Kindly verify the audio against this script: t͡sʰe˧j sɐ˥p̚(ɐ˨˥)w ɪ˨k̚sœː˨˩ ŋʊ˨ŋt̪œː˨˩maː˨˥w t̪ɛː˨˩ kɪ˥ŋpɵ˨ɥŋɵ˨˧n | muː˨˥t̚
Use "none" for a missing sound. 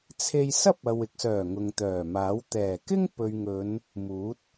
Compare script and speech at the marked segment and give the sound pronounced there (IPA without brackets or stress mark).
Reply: ɐ˨